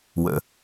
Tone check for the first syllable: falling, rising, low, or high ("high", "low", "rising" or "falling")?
low